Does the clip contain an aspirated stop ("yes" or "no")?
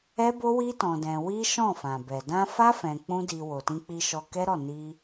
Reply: no